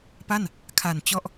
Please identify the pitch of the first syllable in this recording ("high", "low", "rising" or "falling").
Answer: falling